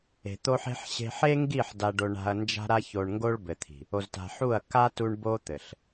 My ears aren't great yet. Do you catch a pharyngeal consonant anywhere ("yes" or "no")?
yes